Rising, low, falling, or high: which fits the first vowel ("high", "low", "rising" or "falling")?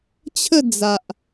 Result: falling